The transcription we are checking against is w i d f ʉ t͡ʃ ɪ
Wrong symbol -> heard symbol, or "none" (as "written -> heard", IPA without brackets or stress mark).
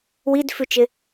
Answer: none